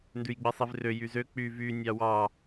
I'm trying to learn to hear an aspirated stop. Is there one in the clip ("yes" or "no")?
no